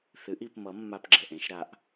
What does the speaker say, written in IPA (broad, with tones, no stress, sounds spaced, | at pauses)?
θ ɨ˩˥ ʔ i˩˧ p m ʌ˩˥ mː a˧ p ɡ͡ǁ ɛ˩ ʔ ẽ˧ ʃ ɾ a˩˧ ʔ